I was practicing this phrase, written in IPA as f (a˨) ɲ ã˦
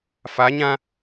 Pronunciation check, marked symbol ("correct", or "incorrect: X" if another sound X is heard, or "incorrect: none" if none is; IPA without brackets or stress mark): incorrect: a˨˦